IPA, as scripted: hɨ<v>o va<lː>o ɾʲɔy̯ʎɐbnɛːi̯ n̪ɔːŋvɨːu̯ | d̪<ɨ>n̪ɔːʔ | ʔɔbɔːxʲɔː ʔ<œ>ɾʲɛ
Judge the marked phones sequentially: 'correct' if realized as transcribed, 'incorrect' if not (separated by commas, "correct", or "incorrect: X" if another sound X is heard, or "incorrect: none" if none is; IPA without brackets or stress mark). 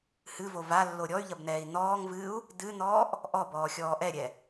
correct, correct, correct, incorrect: ɛ